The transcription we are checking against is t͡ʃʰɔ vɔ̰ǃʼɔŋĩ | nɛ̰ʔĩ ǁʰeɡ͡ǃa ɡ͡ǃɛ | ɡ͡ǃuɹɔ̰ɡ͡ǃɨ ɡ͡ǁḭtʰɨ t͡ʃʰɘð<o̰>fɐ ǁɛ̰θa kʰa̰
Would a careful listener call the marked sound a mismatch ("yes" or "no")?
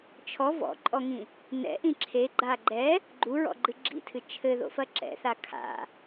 no